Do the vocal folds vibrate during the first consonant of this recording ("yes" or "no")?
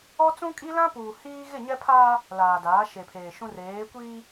no